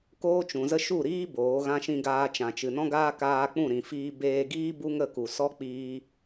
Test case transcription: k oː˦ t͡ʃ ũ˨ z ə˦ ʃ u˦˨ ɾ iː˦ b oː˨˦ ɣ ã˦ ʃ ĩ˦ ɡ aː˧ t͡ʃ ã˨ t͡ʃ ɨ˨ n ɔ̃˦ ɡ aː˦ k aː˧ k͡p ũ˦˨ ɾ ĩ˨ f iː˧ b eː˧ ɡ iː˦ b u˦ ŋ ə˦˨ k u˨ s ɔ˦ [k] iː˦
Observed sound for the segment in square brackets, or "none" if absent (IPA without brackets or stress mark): k͡p